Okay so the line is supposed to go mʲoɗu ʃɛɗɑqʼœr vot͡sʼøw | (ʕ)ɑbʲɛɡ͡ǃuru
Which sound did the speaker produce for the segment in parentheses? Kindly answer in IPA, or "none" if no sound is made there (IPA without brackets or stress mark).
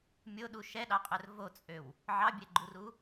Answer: ʕ